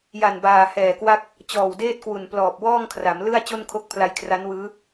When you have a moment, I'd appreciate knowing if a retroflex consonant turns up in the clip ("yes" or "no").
no